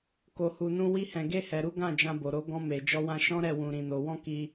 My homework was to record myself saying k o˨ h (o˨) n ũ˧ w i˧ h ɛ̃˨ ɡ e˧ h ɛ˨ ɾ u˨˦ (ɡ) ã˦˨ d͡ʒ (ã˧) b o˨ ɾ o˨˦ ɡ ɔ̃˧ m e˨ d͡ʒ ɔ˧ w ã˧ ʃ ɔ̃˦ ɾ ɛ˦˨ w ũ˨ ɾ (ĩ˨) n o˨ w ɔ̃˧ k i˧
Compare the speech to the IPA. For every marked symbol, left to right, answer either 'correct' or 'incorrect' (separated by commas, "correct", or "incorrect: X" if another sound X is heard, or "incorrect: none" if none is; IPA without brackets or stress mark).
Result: incorrect: u˨, correct, correct, correct